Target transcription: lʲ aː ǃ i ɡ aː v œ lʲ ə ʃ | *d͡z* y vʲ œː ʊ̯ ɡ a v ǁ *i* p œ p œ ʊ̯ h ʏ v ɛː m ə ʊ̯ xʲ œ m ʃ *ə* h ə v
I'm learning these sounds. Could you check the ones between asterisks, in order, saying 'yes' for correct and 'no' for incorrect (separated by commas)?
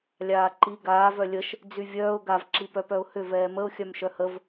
yes, yes, no